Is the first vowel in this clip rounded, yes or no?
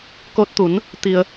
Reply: yes